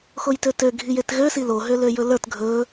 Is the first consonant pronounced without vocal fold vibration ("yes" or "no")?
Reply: yes